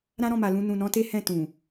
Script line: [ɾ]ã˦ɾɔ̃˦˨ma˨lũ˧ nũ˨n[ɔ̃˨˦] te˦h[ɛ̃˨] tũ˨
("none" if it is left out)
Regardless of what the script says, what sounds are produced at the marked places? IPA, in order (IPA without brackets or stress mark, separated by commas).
ɾ, ɔ̃˨˦, ɛ̃˦˨